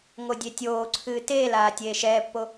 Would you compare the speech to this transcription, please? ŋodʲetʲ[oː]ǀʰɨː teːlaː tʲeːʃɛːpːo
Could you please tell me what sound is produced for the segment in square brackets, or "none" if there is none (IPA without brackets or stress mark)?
oː